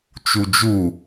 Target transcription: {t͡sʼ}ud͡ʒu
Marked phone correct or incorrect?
incorrect